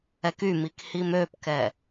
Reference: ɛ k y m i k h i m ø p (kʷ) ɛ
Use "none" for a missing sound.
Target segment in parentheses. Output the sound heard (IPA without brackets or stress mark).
k